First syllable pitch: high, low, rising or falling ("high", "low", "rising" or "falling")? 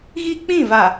high